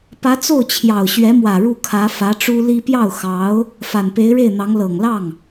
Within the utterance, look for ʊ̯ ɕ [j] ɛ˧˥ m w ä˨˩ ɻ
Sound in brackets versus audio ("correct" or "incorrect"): incorrect